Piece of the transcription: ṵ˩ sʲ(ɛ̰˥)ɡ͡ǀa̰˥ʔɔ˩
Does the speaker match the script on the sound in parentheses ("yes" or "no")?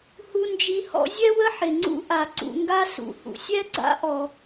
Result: no